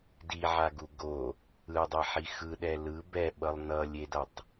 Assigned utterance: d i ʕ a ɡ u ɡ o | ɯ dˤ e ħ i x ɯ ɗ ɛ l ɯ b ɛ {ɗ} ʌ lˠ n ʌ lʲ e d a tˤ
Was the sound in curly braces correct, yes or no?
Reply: no